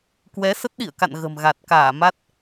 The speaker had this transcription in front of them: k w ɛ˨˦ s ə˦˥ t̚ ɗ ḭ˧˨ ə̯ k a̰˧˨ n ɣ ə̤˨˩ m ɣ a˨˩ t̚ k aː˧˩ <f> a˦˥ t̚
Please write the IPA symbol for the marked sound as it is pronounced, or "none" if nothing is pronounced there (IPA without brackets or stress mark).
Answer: m